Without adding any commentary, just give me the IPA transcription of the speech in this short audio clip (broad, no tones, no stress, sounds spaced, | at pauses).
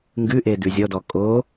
ŋ ɡ ʉ ʔ e d ʉ zʲ ɔ d ɔ kʼ o